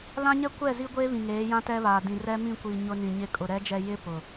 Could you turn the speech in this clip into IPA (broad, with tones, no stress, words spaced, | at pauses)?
lã˦ɲɛ˦kʷɛ˦˨ zi˦ɡʷeː˦βĩ˨ŋeː˨˦ jã˦tɛ˦βaː˨ dĩ˨rɛ˦mĩ˦˨kʷi˨ ɲʊ˦nĩ˨ɲɪ˦ kʼʊ˨ ɾɛ˨˦d͡ʒɛ˨ jɪ˦ pʊ˨